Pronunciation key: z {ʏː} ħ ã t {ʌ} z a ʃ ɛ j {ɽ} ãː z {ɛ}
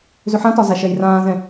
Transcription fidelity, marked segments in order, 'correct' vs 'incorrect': incorrect, incorrect, incorrect, incorrect

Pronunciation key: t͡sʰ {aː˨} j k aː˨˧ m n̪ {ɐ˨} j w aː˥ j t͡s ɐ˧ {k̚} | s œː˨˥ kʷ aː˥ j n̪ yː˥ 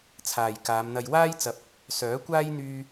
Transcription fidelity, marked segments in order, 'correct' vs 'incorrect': correct, incorrect, incorrect

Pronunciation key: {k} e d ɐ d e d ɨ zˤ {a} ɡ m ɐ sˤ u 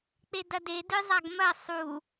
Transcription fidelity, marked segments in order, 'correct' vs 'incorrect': incorrect, correct

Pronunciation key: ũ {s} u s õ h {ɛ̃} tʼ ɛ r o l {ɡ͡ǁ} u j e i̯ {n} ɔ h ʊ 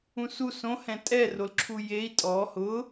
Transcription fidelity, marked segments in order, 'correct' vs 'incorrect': correct, correct, incorrect, incorrect

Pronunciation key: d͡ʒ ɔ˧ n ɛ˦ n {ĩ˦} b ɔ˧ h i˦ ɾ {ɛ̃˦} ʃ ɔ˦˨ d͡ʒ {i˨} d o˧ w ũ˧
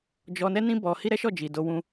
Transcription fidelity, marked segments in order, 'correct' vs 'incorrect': correct, incorrect, correct

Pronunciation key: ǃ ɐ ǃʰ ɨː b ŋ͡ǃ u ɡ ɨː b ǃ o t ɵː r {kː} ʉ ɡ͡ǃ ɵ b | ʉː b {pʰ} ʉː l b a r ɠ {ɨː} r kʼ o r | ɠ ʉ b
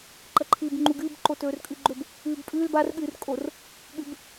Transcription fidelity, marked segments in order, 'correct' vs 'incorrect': incorrect, incorrect, correct

